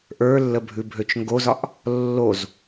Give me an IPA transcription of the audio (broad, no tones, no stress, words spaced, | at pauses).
ʔə˞lːəbʱʉ bʱøt͡ʃŋɡozɒʔ | lːoz